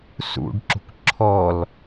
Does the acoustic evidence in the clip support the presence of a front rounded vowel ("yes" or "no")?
no